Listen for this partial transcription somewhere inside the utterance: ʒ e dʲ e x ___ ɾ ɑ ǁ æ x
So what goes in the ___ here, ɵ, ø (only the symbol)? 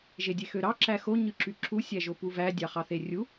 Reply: ø